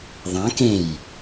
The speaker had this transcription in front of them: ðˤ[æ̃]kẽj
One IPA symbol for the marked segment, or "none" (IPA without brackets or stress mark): ã